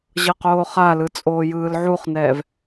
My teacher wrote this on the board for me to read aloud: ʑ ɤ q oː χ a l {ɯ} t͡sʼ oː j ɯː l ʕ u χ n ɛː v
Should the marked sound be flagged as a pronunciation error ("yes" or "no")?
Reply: no